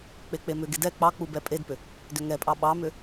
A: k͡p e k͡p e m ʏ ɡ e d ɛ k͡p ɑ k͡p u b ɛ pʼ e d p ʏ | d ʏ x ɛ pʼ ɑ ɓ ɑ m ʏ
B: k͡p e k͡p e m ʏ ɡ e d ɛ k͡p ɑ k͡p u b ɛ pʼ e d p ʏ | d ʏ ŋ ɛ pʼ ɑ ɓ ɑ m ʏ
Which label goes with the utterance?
B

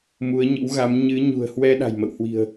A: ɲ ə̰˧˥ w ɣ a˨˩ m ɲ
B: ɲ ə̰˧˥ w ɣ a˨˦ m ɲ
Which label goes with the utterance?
B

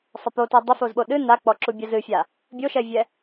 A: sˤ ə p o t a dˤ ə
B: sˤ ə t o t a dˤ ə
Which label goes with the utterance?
A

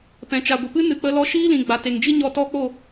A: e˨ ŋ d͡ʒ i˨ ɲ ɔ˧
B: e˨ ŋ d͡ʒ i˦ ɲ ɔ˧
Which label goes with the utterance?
B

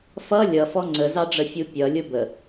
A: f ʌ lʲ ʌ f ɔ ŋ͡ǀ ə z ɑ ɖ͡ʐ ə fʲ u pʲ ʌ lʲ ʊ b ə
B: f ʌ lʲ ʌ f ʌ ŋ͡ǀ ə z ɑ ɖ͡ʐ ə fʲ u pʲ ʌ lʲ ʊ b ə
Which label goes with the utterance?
A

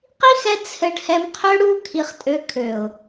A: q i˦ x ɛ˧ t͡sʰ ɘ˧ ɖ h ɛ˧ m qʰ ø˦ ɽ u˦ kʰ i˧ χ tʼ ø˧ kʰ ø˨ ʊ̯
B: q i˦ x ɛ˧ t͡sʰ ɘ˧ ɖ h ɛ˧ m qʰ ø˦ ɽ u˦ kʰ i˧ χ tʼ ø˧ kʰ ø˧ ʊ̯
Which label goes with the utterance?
A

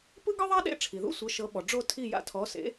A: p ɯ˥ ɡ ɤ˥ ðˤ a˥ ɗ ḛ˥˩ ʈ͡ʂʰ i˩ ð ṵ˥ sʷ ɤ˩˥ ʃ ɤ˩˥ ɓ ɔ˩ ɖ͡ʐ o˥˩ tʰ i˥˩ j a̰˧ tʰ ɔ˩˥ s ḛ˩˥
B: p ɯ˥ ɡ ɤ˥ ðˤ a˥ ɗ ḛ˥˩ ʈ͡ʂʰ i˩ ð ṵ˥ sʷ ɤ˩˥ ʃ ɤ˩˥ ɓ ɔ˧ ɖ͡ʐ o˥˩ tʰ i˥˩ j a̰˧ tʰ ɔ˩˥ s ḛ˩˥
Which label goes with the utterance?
A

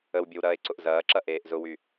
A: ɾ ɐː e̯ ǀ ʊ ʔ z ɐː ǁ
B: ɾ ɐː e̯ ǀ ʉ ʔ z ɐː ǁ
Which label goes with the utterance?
A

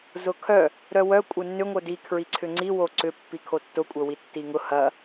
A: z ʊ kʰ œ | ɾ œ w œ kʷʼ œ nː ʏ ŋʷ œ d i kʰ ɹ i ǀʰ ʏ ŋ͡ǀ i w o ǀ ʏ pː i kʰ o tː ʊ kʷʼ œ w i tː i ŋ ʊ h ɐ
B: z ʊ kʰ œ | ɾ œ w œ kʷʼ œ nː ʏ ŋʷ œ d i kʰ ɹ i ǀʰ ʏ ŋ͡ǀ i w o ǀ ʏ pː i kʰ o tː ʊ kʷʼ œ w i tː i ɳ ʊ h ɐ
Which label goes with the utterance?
A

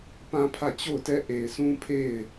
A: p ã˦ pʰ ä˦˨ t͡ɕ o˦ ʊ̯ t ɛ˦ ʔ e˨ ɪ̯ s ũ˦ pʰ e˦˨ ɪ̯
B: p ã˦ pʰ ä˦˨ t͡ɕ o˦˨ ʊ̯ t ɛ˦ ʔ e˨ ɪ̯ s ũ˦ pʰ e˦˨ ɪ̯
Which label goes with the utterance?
B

